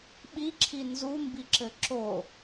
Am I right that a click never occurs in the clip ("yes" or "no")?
no